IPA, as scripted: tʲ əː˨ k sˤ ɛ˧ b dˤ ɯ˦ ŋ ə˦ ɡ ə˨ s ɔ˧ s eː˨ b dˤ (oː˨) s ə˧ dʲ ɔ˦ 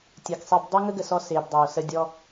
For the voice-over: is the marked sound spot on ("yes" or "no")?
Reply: yes